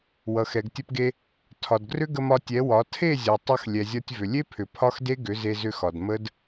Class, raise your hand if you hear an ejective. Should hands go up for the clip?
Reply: no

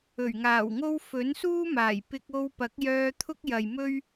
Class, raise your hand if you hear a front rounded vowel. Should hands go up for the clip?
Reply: yes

